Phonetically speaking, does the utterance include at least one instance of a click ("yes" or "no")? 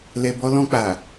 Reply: no